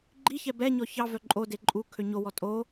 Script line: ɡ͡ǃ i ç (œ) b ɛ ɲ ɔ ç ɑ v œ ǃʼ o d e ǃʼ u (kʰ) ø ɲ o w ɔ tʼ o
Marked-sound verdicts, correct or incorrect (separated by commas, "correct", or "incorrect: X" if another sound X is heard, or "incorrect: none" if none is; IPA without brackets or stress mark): incorrect: ɛ, correct